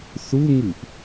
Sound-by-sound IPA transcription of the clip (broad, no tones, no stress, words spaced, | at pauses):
θuŋɨʔ